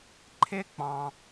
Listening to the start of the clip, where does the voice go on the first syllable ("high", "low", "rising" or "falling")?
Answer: high